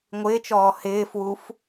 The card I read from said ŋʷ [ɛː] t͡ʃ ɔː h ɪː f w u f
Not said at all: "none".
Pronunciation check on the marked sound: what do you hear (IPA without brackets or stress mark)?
ɪː